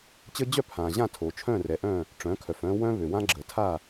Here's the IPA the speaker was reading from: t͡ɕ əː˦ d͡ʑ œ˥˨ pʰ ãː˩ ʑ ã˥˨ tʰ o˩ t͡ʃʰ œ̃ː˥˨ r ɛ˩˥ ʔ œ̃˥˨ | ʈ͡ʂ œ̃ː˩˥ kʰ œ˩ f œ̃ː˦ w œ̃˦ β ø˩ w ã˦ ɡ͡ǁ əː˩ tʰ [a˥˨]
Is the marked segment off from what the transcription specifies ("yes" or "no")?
no